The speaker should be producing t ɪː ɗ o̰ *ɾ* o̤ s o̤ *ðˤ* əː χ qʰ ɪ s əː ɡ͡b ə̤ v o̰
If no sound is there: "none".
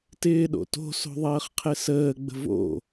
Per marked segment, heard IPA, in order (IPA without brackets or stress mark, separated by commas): t, ðˤ